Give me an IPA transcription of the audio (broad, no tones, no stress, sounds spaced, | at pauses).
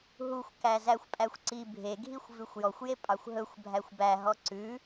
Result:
ɦ u xʷ k æ z æ xʷ pʼ æ xʷ ǀ i bʱ e ɡʱ i xʷ v ʉ xʷ j ɔ xʷ j e pʼ ɑ xʷ ɦ ɵ xʷ bʱ æ xʷ b æ ɦ ɔ ǀ ʉ